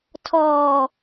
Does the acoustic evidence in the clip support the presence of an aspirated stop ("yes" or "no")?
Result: yes